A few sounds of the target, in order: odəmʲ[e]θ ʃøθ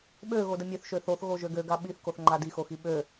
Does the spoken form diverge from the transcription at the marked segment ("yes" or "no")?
yes